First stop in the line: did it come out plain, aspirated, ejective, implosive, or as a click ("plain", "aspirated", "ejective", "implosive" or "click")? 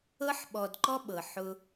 implosive